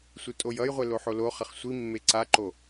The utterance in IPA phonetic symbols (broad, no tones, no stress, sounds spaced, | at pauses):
sʷ ɯ tʼ o j ʌ j ʁʷ ɛ l o ħ o l o χ ʌ χ sʷ i mː e ǀ a ǃ o